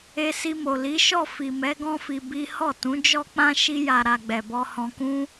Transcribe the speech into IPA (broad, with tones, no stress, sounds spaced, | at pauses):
e˧ s i˧ m o˨ l i˨˦ ʃ ɔ˦˨ f i˨ m ɛ˨˦ ɡ ɔ̃˦ f i˧ b i˦ h ɔ˦˨ t ũ˨˦ d͡ʒ ɔ˦ k͡p ã˦ ʃ i˧ j a˨ ɾ a˨ ɡ͡b ɛ˨ b ɔ˧ h ɔ̃˧ k ũ˧